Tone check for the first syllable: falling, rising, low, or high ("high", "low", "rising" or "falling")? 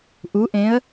rising